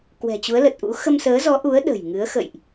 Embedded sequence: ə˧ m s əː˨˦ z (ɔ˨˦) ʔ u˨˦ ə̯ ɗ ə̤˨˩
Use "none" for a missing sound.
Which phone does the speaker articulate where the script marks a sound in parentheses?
ɔ˨˦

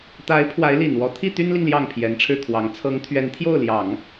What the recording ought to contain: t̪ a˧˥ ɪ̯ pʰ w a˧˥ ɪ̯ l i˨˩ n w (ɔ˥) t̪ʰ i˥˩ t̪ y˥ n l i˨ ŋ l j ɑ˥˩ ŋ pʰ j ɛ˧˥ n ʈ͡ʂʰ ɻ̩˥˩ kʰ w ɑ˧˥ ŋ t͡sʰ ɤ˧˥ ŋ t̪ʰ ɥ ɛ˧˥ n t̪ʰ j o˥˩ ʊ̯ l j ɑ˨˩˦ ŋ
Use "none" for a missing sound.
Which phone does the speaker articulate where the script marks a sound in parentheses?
ɔ˧˥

